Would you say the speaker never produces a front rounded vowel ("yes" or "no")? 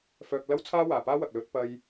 no